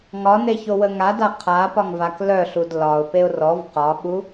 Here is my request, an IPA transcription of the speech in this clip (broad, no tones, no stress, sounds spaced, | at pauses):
ŋ ɒ n e ç o w ə ŋ a d a qʰ a p ɒ ŋ v a k l œ ɬ u d l ɒ ʊ̯ p e ʊ̯ r ɔ v q ɒ ɓ u